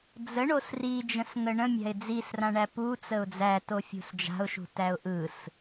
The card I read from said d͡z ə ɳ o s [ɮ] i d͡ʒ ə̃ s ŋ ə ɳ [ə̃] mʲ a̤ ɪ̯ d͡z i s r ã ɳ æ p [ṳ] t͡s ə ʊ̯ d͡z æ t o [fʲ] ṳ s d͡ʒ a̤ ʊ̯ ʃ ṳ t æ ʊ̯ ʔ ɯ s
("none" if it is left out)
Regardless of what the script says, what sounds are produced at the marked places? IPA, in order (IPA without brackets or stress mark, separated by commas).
r, ə̃, u, fʲ